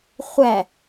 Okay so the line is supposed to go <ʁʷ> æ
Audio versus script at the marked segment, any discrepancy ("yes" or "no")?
yes